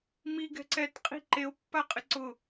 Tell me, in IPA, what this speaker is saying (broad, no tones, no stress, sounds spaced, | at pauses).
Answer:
m i ɡ ɛ̤ ǀ ɛ t qʼ i̤ ǃ e o̯ pː a qʼ ɪ ǀ ʊ